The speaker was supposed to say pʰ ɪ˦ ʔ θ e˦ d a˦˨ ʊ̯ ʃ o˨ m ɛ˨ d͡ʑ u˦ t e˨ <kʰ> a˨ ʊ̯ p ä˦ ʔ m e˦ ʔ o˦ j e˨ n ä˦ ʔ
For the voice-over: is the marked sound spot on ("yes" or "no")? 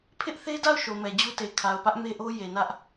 yes